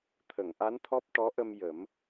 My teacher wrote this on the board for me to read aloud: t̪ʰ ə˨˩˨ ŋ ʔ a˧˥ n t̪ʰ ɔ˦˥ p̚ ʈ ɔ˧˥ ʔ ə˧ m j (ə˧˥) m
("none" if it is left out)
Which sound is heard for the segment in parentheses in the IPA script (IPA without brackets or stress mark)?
ə˨˩˦